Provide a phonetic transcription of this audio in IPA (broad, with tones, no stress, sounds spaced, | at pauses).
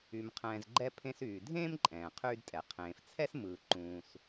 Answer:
y˩ m qʰ ɛ̃ː˩ z ɡ͡ǃ ɛ˧ pʰ ẽ˧ s yː˩ dʱ ẽː˥ m ǃʼ ɛ̃ː˩ qʰ yː˧ d tʼ ɛ˩ qʰ ẽː˩ f t͡sʰ ɛ˥ s m ɯː˩ ǃ ũː˩ s